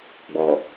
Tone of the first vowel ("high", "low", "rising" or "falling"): low